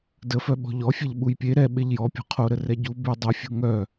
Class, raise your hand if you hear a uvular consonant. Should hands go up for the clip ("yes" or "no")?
yes